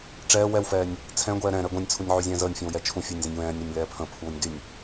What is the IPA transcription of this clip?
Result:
ʈ͡ʂ ɛː w ɛ w f ɛː nʲ | t͡sʰ ɛ̃ ɡʷ ɛː ɾ ɛ̃ ɾ ɛ ɡʷ ɛ̃ nʲ t͡sʰ u nʲ ʕ y zʲ ɛ̃ː z əː nʲ fʲ ɛ̃ w j ɛ t͡ʃʰ ũ fʲ əː nʲ z ə̃ nʲ w ɛ̃ː nʲ ɾ ɛ nʲ l ɛː pʰ ə̃ pʰ uː nʲ d y nʲ

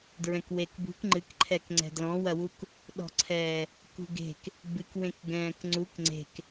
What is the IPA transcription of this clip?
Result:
d ɹ ɛ̃ k w e k b ṳ k ŋ͡ǃ ɨ k ǃʰ ɛ k ŋ͡ǀ ɛ̤ d l ɔ̃ w ɐ w u k | ɗ ɔ̤ ǀʰ ɛː | k ṳ ɡ e̤ k | b ɨ k w ẽ k ɡ ɛ̃ː k ŋ͡ǀ u k ŋ͡ǀ e̤ k

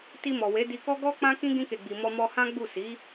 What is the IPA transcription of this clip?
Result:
t i˧ m ɔ˨ w e˨˦ d i˧ k ɔ˦ ɡ ɔ˦ k͡p ã˦ k ĩ˦ ɡ ĩ˧ k e˨ ɡ͡b i˨ m ɔ˧ m ɔ˧ h ã˦ ɡ͡b u˦˨ s i˨˦

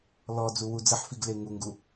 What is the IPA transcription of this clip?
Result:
l ɔ d͡z u w u d͡z ə ħ f i ɡ l e ŋ u ŋ ɡ u

